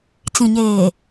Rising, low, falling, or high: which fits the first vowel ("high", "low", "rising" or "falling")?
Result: low